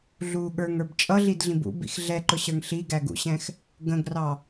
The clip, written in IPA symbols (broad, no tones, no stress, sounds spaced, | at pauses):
ɮ u ɠ ə˞ ŋ ə˞ b t͡ʃʼ ʌ ɮ i d ɮ ĩ b ṵ b ḭ x ɮ ɛ ǃ ʊ ɕ ə˞ ŋ ɬ i ɡ æ ɡ ṵ ɕ ɛ̃ x | ɡ ə̃ ɡ r ɑ